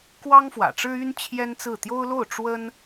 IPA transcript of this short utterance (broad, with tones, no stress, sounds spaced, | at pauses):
k w ɑ˥ ŋ f w ä̰˨˩ ʈ͡ʂ ɻ̩˥ y˥ n t͡ɕʰ j ɛ˥ n t͡s ɹ̩˥˩ t̪ j o˥ ʊ̯ l o˥˩ ʊ̯ ʈ͡ʂ w ə˥ n